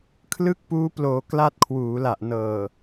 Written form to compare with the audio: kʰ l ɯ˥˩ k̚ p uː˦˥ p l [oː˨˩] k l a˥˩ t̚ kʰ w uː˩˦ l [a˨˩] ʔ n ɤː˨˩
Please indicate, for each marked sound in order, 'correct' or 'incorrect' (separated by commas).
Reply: incorrect, correct